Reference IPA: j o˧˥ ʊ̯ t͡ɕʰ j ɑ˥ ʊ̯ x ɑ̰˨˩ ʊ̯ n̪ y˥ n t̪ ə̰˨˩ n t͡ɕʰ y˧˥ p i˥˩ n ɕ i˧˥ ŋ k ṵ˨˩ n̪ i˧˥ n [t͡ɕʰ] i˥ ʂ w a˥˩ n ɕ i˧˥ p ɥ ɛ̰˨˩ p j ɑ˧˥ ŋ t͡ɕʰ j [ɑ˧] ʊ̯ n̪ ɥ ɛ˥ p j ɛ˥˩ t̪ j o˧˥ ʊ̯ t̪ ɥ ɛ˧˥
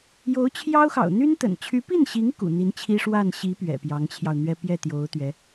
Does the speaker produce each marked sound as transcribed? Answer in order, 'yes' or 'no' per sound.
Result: yes, yes

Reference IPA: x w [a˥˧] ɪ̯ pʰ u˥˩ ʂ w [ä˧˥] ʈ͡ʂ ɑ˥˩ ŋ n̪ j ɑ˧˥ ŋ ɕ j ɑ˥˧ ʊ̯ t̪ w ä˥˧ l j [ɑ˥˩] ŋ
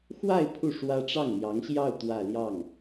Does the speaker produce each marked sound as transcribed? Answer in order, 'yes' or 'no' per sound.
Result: yes, no, yes

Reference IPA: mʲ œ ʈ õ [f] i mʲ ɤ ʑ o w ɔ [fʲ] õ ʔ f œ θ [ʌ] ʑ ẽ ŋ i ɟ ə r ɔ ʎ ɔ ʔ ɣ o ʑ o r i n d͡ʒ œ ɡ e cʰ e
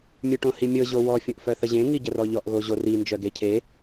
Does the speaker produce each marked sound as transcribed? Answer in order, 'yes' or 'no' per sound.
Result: no, yes, no

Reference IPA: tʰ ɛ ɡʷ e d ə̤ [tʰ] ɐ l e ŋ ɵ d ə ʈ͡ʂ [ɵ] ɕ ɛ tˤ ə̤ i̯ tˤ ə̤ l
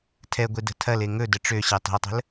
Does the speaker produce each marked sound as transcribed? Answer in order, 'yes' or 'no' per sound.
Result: yes, no

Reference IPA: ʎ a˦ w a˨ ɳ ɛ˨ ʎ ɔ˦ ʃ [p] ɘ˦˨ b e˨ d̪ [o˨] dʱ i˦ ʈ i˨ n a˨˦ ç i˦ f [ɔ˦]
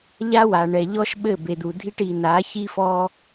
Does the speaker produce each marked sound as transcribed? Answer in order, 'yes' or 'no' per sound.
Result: no, no, yes

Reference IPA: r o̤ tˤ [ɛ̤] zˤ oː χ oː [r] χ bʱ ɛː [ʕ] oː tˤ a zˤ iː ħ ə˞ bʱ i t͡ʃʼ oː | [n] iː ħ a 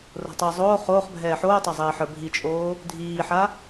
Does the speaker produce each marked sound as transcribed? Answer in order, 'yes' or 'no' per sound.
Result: no, no, no, no

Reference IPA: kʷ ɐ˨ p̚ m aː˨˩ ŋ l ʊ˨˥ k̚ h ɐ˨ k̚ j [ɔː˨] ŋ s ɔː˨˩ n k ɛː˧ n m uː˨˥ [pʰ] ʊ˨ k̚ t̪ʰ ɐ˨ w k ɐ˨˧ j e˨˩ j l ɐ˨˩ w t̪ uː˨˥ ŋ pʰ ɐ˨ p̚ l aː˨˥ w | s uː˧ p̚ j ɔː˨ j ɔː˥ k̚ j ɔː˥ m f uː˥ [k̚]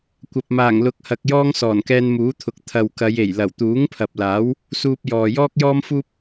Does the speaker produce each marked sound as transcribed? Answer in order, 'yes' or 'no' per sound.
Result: no, no, no

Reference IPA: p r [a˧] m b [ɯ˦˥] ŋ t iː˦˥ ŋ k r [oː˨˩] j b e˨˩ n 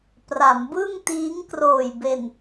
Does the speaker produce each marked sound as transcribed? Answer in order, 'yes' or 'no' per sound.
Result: no, no, yes

